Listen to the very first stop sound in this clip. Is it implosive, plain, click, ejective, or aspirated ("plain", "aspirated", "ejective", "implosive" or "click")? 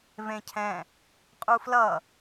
aspirated